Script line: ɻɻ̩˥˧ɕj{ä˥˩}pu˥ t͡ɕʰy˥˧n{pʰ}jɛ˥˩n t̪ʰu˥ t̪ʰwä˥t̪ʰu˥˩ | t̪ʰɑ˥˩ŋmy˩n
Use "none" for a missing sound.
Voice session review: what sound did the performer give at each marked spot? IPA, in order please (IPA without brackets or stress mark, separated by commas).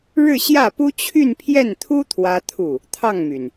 ä˥˩, pʰ